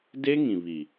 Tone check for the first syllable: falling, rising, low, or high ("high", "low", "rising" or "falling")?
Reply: high